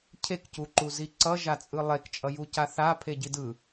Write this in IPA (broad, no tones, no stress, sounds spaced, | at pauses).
cʰ e k c u ǃ u z i ǀ ʌ ʒ a t͡sʼ ɯ lˠ e k t͡ʃʼ ʌ j u c a θ a pʰ e ɟ i d ɯ